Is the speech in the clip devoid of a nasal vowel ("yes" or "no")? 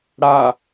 yes